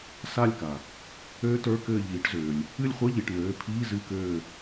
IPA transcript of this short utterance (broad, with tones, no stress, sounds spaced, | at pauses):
s a˦˨ lʲ k a˩ | øː˦˥ t ə˞˧˥˧ k ɘː˦˨ ʎ iː˨˥ ʈ z øː˩ lʲ | ɨ˦˨ lʲ χʷ ɘ˧˥˧ ʎ i˩˧˩ ʈ n øː˩˧˩ pʰ iː˧˥˧ z ɨ˧˥˧ k øː˦˨